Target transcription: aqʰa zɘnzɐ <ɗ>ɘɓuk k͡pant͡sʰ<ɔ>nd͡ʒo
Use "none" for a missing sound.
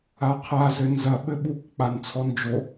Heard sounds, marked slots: ɓ, ɔ

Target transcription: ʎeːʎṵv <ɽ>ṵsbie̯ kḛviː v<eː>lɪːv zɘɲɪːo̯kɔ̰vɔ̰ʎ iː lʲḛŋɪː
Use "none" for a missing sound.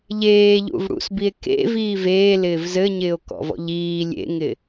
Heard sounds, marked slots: ɽ, eː

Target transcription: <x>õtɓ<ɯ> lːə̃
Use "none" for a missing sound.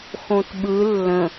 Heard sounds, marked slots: x, ɯ

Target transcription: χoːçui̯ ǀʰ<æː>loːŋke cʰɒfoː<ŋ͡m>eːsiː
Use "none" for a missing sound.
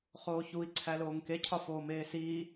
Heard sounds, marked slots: æ, m

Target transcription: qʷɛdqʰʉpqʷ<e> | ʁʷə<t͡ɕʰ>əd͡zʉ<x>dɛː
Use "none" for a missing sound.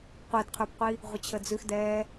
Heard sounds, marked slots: i, t͡ɕʰ, x

